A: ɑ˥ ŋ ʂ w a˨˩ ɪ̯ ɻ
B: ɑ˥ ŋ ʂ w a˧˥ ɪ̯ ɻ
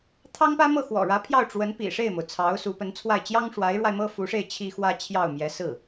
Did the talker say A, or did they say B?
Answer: B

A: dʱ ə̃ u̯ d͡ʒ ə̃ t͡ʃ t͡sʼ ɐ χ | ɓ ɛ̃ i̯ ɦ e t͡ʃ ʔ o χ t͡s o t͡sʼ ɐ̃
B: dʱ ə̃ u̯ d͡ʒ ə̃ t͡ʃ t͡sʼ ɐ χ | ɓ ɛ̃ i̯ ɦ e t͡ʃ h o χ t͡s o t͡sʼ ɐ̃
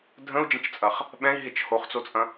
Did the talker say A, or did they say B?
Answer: B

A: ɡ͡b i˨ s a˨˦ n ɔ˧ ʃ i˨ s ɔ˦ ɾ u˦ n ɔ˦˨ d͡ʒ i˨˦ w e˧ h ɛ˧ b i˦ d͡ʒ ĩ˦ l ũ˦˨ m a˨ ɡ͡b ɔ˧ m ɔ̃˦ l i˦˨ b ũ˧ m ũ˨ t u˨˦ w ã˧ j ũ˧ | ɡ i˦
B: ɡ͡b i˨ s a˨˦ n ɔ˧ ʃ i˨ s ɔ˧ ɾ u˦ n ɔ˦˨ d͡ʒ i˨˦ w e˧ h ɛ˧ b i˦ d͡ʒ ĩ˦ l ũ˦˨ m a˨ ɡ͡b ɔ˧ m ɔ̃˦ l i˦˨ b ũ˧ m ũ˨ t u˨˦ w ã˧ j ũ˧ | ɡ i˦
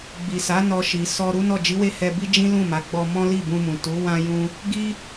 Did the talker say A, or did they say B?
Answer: B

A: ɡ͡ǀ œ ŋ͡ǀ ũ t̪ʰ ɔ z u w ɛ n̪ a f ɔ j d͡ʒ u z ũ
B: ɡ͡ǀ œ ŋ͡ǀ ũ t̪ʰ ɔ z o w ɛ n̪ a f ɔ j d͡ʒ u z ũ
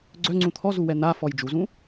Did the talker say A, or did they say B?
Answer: A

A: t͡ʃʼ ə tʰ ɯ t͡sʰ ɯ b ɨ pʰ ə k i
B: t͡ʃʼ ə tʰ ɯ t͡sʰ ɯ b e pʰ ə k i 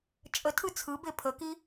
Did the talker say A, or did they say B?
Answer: B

